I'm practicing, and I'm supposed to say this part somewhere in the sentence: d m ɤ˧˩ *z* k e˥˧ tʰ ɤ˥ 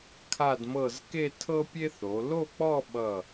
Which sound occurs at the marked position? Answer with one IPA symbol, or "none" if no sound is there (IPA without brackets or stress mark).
z